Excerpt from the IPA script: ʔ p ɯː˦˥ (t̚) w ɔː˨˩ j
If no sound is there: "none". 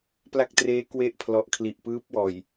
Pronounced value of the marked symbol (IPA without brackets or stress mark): p̚